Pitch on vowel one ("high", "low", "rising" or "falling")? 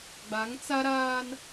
rising